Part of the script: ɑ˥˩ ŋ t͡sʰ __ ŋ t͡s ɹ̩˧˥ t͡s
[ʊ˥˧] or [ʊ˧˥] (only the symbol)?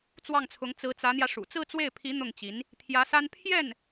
ʊ˧˥